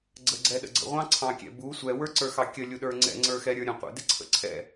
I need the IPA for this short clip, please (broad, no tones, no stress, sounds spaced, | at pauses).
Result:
ɡ͡ǀ ə ɡ͡ǀ ɛ ɗ ə̰ ɡ͡ǀ ə̰ ʁʷ ɑ̃ ǀʰ ɑ̃ kʲ ɛ̰ b u sʷ ɛ w ə˞ ǀ ə˞ x ɑ kʲ ə lʲ u ɗ ə˞ ŋ͡ǀ ɛ̰ ŋ͡ǀ ə˞ x ɛ ɾʲ ə˞ ɾʲ ə̃ qʷ ə̰ d ɪ ǀʰ ə̰ ǀʰ ɛ̰